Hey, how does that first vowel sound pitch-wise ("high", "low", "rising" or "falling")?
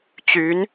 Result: rising